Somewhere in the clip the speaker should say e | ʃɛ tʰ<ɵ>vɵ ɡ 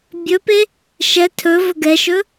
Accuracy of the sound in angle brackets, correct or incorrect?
correct